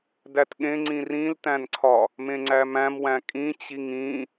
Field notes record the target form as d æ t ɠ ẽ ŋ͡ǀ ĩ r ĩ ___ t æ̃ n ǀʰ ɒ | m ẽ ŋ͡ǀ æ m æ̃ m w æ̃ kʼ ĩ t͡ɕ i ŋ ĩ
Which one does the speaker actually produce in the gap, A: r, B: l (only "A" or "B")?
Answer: B